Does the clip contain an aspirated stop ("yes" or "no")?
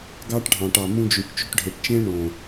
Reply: no